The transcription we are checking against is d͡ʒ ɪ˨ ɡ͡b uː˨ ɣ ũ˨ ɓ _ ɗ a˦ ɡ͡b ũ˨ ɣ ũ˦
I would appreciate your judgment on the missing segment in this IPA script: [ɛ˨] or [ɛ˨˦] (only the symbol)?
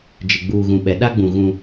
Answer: ɛ˨˦